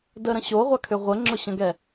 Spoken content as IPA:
d ə ɾ ə̃ ɕ o ʁʷ a kʰ ʏ ʁʷ ə ŋ͡ǁ ʊ ɕ ə̃ ɡ ɛ

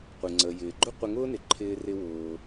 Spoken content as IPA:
qʷ ɪ˩ ŋ͡ǀ ə˩ j ɪː˩ ɡ͡ǃ ʊ˥ qʷ ɪ˧ ŋ ʊː˥ n ɪ˩ ǃʰ ɪː˧ r ɪ˧ w ʊː˩

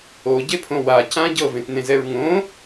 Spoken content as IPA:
o ɟ e pʰ õ w a c ã ɟ ɤ v ẽ t n ẽ z ɛ ɹ ŋ õ

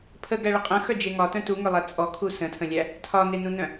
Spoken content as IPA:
pʰ ə ɡ æ ɭ ə qʼ ə̃ x œ d͡ʒ e ŋ ɒ t œ̃ t u ŋ œ lˠ æ t͡sʼ ɔ kʰ u s ə̃ tʰ ə̃ lʲ æ | tʰ ɒ n e n ũ n œ̃

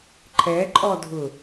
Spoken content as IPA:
ǃʰ ɛ ǃʼ ɔ dʱ ʊ

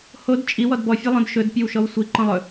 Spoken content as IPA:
h o d t͡ʃʼ i w ɔ d b ɔ fʲ o lˠ õ d ʃ ɵ d pʲ ɵ w ʃ ɔ w sʷ i ǃ ɔ̃ lˠ ɵ

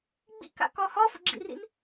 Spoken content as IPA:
ɡ͡b ḭ k a̰ k ɒ h ɒ f ə̰ ɡ͡ǁ ḭ r ḭ n

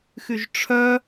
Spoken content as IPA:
x y ʒ ʈ͡ʂʰ œ

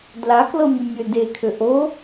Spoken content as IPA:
d l a k l ɤ mʲ ə mʲ ø d e kʰ ø ʔ o

